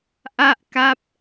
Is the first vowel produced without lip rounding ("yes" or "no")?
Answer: yes